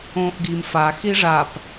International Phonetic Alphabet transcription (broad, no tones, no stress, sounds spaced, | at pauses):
õː ʔ ɡ i m f a x i ʐ a p